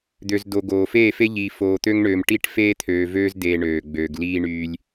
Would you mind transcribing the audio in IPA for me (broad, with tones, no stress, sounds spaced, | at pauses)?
d̪ ø˨ z d o˨ ɡ oː˨ f eː˦˨ f e˦ ʎ iː˨ f oː˨ t̪ ø˦ ŋ ɳ øː˨ m ʈ i˦ ʈ f eː˦ t̪ʰ øː˨ v øː˦ z d eː˨ ɳ øː˨ ɡ͡b øː˨ ɡ l iː˦ ɳ yː˦ lʲ